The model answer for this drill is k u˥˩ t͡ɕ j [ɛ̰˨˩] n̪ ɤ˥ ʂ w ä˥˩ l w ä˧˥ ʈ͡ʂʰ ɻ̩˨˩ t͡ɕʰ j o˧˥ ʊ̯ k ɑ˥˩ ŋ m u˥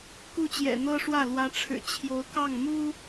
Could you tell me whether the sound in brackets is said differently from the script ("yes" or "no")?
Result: no